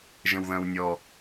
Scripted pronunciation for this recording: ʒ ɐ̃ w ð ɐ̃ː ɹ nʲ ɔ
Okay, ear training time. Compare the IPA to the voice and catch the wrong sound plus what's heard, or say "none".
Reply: ɹ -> w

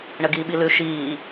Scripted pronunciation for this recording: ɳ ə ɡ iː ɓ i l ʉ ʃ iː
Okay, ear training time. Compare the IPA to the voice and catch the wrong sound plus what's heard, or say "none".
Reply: none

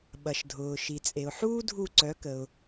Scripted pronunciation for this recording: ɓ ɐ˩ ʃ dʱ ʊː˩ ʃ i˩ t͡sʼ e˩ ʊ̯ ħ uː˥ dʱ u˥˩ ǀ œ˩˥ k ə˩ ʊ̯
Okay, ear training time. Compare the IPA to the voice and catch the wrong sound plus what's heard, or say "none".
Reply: none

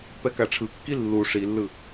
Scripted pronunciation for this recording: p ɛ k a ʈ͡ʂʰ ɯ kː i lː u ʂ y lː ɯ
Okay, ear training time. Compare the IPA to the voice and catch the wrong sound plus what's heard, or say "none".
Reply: y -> i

